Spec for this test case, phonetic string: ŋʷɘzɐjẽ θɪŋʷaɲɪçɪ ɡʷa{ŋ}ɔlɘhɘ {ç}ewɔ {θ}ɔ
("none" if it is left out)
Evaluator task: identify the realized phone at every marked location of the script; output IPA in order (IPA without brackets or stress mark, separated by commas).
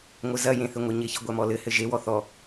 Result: m, ʒ, θ